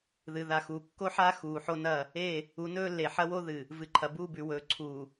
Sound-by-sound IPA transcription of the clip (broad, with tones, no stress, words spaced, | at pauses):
ðɨ˨ ða˨xuː˨kːo˦ħaː˦ xuː˨ ħo˦nɐ˦˨ | e˦˨ | u˨˦nɵː˦lːe˨ ħɐ˦wo˦ðɨ˨ | vɨ˨ǃʰɐ˨buː˦˨bʉ˨ wɵː˨ ǀʰuː˨